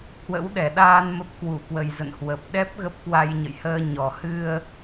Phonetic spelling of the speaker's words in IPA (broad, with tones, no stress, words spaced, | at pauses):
hwə̰˧˥wɗɛ˧˩ɗaː˧n mə˦˥p̚kwu˧˩kwə˨˩jzə̰˧˨n hwə˨˩p̚ ɗɛ˦˥p̚ ɣə˦˥p̚kwa˧jɲə̰˧˨jhəː˧ ɲɔ˨˩ hɨ˧ə̯